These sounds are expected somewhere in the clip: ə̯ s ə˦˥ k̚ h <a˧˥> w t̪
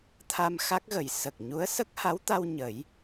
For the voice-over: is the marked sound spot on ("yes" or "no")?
yes